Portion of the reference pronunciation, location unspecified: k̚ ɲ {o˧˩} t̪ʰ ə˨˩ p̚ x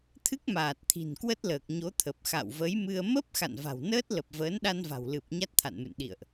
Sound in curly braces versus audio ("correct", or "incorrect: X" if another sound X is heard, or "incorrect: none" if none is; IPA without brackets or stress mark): incorrect: o˨˦